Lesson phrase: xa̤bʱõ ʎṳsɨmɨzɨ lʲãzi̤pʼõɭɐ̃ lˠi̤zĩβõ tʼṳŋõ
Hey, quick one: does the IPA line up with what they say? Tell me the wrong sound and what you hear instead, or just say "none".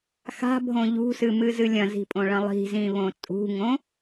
ã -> ɐ̃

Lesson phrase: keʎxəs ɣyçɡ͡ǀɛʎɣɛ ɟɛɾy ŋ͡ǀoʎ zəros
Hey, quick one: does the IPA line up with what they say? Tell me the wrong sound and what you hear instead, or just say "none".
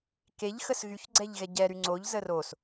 none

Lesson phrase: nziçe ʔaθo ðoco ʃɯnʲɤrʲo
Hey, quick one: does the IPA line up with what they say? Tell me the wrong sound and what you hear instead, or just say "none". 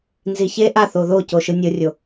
none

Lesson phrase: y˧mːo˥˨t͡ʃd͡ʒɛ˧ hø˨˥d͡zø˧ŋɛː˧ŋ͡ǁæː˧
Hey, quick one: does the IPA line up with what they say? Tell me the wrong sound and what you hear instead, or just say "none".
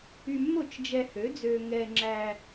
none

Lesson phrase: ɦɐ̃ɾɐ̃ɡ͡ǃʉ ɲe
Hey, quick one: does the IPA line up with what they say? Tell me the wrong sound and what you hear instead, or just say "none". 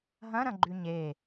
none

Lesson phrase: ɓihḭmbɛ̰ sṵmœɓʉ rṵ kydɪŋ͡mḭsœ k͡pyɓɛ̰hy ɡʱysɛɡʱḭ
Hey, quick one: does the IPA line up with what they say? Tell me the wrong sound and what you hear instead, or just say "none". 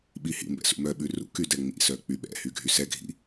ɪ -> ɛ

